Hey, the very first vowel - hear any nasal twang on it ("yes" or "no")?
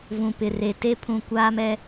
yes